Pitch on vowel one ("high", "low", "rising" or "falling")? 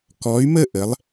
rising